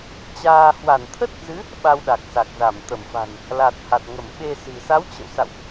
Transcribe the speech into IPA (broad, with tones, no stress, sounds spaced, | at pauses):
t͡ɕ aː˧ h w a˧˩ n t̪ʰ ə˦˥ t̚ z ɨ˨˦ | ɓ a˧ w ɗ a˨˩ k̚ s a˨˩ k̚ z a˧˩ m t̪ ə˧˩ m f a̤˨˩ n | l a˨˩ t̚ h a˨˩ t̚ ŋ ə˧˩ m ɓ e˧ s ɨ̤˨˩ s a˨˦ w t͡ɕ ə̰˧˨ w s a̰˧˨ w ʔ